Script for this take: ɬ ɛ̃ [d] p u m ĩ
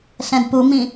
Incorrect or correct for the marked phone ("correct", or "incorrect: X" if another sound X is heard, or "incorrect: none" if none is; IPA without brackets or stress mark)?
correct